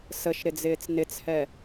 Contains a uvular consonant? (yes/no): no